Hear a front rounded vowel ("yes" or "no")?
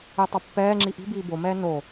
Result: no